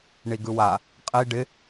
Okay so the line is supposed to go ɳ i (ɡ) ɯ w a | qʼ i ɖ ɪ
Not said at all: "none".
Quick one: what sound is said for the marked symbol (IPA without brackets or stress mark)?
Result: ɡ